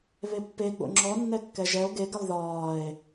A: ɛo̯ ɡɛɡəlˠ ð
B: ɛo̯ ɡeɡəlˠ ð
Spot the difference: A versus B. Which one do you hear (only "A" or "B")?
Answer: B